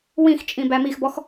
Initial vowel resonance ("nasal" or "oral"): nasal